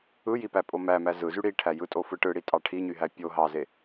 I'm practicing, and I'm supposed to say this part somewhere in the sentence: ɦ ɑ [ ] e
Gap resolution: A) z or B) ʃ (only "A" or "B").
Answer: A